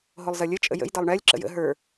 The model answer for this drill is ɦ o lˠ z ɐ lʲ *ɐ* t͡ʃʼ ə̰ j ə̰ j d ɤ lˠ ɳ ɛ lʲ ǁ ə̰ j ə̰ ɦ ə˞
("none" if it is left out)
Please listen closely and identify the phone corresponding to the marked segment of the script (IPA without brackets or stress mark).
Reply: ə